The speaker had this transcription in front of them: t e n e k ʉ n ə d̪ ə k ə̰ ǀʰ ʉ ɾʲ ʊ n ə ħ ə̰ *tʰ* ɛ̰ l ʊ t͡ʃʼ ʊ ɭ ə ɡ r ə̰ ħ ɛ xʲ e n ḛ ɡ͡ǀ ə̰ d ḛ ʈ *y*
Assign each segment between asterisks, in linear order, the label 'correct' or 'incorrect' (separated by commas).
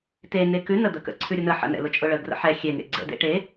incorrect, incorrect